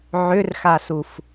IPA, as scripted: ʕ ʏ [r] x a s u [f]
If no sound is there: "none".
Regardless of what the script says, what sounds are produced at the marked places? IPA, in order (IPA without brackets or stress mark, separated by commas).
r, f